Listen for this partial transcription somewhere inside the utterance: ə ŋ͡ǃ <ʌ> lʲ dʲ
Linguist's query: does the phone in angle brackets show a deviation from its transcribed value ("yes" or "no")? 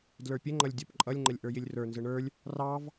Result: no